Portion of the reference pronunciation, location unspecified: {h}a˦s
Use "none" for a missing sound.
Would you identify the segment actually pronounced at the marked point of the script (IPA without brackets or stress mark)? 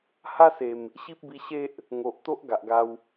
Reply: h